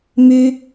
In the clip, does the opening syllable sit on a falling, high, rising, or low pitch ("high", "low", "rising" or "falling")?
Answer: high